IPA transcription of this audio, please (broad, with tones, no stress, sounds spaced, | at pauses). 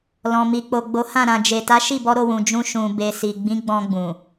l ɔ̃˨ m i˨ k͡p o˨ ɡ͡b o˨˦ h ã˦˨ ɾ ã˨ d͡ʒ e˨ t a˨˦ ʃ i˦˨ b ɔ˧ ɾ o˧ w ũ˨ d͡ʒ ũ˧ ʃ ũ˨ b e˨ s i˨ ɡ͡b ĩ˨˦ ɡ͡b ɔ̃˧ ɡ͡b ũ˨